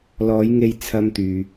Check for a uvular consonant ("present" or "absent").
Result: absent